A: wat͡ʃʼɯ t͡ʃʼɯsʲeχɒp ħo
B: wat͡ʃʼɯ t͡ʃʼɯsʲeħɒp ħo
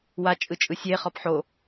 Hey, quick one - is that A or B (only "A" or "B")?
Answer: A